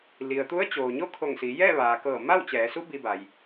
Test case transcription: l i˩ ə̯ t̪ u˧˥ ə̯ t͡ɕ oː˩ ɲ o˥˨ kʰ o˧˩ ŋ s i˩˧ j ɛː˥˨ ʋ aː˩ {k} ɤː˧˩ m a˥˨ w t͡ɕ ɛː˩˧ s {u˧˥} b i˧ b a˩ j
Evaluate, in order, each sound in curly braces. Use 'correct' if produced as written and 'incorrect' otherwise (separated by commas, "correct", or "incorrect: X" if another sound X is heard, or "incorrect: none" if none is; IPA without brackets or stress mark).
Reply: correct, correct